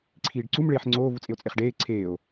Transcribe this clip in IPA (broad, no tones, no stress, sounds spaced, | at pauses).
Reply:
ǀʰ iː ɖ ǀ u m ɭ eː ħ ŋ͡ǀ oː v u t͡sʼ e o̯ t͡sʼ e χ ɖ eː ǀʰ eː o̯